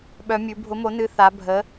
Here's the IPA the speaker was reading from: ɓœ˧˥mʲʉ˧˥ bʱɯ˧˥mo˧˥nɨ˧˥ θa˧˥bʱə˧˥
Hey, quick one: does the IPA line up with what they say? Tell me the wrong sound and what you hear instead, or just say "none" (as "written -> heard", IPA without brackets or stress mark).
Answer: ɯ˧˥ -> ʊ˧˥